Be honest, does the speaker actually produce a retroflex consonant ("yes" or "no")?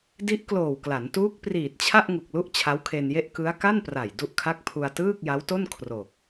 no